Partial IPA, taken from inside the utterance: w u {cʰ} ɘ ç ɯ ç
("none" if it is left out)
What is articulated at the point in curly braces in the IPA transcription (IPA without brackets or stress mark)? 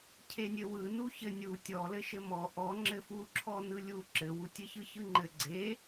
tʲ